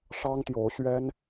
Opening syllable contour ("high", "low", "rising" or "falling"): high